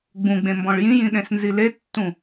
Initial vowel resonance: nasal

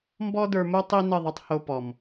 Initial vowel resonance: oral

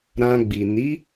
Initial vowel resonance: nasal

